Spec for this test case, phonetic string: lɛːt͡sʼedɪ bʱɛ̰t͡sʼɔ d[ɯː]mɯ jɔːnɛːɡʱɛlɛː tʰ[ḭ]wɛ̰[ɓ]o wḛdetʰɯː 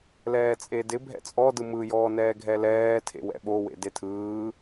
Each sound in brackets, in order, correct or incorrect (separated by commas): incorrect, incorrect, correct